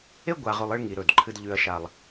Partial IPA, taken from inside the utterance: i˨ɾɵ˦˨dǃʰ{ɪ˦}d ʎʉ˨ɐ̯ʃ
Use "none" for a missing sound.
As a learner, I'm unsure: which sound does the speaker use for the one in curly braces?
ɨ˦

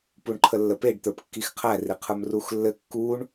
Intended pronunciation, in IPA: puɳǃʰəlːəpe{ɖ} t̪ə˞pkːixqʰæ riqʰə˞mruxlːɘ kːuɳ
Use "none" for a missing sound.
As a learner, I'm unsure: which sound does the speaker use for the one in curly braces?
ɖ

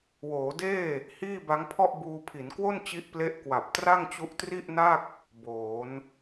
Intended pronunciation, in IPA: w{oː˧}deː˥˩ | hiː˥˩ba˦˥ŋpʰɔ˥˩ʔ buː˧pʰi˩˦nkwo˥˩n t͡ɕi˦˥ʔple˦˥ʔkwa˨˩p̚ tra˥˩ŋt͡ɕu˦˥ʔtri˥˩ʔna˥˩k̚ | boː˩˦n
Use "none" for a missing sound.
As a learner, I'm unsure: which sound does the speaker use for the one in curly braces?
oː˩˦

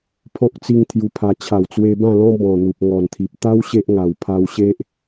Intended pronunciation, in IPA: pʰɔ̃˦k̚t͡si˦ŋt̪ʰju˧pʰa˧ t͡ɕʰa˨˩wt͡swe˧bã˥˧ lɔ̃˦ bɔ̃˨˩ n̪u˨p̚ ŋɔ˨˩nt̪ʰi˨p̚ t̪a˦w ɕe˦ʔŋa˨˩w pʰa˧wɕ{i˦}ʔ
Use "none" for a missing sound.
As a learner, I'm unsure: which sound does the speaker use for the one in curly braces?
e˦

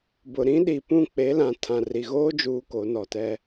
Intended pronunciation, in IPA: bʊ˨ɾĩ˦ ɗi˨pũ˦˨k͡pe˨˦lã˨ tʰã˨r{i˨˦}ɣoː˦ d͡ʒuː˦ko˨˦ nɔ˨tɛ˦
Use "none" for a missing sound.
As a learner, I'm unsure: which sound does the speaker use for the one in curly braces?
i˨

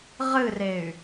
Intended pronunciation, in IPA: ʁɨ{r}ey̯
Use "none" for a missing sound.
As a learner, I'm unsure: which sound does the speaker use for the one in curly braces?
r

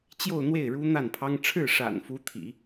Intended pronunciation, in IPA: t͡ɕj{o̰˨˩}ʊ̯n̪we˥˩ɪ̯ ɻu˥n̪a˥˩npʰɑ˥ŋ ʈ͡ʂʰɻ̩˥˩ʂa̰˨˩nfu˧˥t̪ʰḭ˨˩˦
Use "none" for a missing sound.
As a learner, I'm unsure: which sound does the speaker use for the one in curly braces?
o˥˧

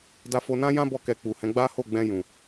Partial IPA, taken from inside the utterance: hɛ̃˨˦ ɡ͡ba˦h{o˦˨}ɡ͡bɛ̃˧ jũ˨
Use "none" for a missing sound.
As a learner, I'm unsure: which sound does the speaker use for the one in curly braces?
o˦˨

